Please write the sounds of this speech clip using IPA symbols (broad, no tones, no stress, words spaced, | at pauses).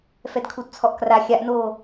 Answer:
fɛdkʰudt͡sʰɔʔkra xʲaʔnoː